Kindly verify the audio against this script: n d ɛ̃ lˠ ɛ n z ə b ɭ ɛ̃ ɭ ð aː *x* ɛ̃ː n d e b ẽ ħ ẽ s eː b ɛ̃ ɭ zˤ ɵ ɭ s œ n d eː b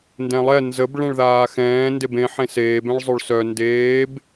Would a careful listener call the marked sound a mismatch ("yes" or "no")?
no